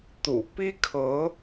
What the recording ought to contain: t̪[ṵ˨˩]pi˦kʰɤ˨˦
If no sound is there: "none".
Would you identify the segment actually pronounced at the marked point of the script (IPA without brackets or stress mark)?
ṵ˨˩